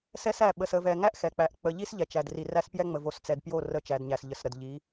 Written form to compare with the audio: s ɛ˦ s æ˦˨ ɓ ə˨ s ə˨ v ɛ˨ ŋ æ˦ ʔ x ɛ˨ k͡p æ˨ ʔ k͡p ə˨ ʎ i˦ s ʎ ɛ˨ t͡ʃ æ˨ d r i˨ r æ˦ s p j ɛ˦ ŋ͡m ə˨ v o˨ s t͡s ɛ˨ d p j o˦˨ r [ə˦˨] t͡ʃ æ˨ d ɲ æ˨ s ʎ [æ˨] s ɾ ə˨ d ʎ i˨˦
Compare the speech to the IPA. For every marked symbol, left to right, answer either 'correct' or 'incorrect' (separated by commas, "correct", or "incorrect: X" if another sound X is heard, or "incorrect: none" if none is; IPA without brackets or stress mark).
correct, incorrect: ə˨